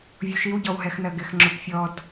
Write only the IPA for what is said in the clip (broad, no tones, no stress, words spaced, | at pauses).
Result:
vʲuʃiw ɟɔwɦɛxnɜɡɪx ŋ͡ǁʊpfʲɔd